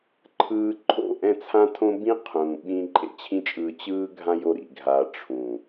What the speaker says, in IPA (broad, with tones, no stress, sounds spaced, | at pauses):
ǃʰ ɯː˧ ǃʰ o̰˦˨ ʔ ɛ̃˦˨ t͡sʰ ã˦ tʰ õ˦ b ĩ˦ qʰ ũː˨ ɓ ĩ˧ ǃʼ ḛ˧ t͡ɕʰ ĩ˦ t͡ʃʼ ɯː˧ t͡ɕ ɯː˦ ɡʱ ã˦ j o˧ ɾ ḭ˨ ɡʱ a˧ ʈ͡ʂʰ ũ˨